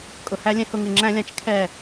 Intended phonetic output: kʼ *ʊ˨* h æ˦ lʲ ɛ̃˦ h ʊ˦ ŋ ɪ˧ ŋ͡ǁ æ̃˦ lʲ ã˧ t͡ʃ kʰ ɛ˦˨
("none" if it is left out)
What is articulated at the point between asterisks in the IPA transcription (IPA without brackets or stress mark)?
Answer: ʊ˨